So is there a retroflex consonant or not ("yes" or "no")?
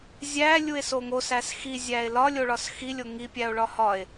yes